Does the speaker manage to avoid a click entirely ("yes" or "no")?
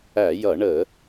yes